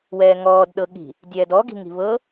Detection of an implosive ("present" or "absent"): present